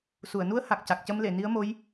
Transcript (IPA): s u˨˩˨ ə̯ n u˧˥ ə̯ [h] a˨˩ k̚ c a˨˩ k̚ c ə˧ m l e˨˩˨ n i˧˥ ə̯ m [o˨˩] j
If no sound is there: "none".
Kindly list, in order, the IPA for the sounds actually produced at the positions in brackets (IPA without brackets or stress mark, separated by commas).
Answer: h, o˧˥